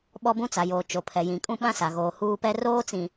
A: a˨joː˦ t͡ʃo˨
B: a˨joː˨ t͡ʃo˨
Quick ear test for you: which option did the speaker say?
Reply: B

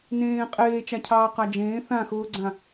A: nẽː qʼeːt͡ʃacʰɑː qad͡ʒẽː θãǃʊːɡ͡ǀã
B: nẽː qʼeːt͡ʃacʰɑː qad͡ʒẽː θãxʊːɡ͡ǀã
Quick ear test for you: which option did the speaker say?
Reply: B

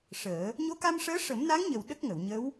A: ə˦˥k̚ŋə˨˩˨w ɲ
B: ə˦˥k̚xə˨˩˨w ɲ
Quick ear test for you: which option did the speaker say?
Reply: A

